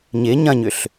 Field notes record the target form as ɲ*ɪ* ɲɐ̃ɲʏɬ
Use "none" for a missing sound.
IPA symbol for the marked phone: ɪ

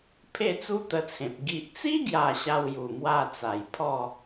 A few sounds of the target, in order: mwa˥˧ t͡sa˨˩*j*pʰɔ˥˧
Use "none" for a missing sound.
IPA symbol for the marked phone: j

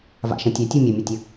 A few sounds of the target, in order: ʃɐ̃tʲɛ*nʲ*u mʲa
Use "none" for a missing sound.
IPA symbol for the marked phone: tʲ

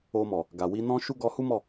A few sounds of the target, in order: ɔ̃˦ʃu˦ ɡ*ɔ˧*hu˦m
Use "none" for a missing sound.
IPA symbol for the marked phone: ɔ˧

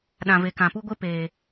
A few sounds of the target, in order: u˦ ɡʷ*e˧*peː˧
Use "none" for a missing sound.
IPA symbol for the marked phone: e˦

